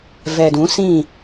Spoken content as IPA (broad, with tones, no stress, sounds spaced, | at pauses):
v ɛ˨ d ũ˨˦ s ĩ˦˨